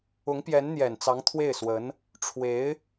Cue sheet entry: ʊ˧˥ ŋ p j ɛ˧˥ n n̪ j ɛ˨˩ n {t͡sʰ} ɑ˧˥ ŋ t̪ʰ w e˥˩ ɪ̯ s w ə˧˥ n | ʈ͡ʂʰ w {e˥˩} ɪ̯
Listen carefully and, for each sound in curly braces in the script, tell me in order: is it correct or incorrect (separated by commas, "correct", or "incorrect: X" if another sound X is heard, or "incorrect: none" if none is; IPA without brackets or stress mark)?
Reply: incorrect: t͡s, incorrect: e˧˥